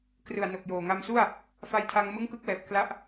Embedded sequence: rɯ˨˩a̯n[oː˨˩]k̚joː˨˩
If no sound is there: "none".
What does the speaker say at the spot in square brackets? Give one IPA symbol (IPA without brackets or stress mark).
o˨˩